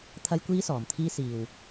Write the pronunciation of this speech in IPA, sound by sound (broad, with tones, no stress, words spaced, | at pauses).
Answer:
t̪ʰɐ˥jkʷiː˥sɔː˨mt̪ʰiː˥ siː˧w